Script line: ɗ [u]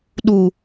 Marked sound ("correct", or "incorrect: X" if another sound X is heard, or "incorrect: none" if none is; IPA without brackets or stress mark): correct